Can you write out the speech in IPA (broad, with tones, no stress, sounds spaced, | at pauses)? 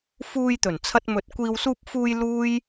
f uː˧ j t̪ ɵ˨˩ n t͡sʰ ɐ˧ t̚ m ɵ˨˥ t̚ kʷ iː˨ w s uː˧ p̚ f uː˧ j l uː˥ j